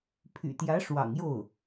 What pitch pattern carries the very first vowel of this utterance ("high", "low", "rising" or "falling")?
low